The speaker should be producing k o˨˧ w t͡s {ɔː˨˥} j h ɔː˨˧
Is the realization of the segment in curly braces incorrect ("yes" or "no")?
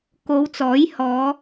no